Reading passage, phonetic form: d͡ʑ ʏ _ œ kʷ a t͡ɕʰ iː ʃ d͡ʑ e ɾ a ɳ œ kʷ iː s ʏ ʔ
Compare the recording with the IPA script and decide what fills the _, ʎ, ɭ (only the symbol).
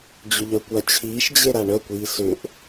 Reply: ʎ